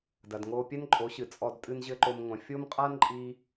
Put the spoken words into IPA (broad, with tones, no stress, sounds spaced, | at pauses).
d ɐ˨ d ŋ oː˧ pʲ ɛ˦ n ǃʼ o˨˦ ɕ ɨ˨ t͡sʼ ɔ˧ d tʼ ɨ˦ n ʑ ɘ˦ ǃ o˧ m ŋʷ ɐ̃˨ fʲ o˦ m qʼ a˦ n ǃʼ i˦